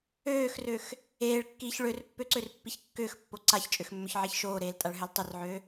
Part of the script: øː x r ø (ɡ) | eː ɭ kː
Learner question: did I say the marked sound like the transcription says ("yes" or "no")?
no